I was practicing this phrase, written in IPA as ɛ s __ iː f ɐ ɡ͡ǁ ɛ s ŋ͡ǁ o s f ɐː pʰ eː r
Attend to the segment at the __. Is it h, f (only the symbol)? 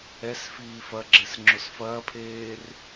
f